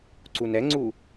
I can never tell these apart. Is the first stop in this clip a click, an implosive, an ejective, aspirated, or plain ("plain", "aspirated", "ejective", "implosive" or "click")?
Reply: click